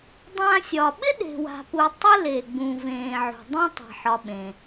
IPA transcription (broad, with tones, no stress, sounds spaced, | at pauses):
dˤ ã˦ sʲ ɒ˨ ɓ ɪ˥ ɗ e̤˨ w a̤˨ p u˨ tˤ ɪ˥ l e˨ ɡ͡b ũ˨ v ẽ˨ ʕ ṳ˩ dˤ ũ˥ tˤ e̤˨ ħ ɒ˨ ɓ ẽ˩